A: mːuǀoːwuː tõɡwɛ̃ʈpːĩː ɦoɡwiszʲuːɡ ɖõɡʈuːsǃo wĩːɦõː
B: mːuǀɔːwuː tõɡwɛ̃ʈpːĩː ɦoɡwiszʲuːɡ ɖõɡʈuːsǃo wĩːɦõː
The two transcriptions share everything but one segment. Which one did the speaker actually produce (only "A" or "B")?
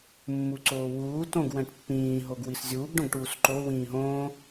A